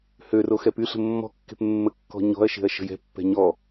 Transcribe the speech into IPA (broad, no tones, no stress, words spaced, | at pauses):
høro xɛpyɬə̤ mːɔ̤kːe̤p mːəkːɔ̤ɲɔ̤ɐ̯ʃe̤ɐ̯ ʃə̤jɛ̤pːɛ̤ ɲɔ